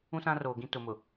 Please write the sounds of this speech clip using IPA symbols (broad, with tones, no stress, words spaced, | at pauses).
ũ˦sã˦roː˨ ɡĩ˦ tʊ˨mʊ˨